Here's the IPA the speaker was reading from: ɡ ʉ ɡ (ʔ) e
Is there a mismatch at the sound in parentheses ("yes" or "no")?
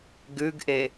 no